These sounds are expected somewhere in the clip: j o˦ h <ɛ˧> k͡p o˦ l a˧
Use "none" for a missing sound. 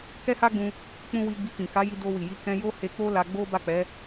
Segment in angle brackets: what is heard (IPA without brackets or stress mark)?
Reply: e˧